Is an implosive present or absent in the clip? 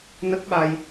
present